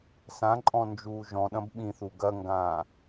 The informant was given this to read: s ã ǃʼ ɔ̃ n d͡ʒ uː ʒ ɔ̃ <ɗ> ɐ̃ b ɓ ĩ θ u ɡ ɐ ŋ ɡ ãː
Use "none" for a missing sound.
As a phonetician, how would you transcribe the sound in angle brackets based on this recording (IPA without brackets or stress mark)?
ɗ